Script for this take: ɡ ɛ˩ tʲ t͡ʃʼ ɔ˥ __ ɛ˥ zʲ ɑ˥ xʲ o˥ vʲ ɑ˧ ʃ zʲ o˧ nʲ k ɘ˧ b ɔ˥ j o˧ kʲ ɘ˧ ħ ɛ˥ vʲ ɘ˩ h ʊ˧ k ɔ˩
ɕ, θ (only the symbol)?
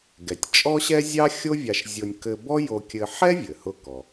ɕ